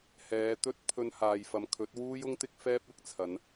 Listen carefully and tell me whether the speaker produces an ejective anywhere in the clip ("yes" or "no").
no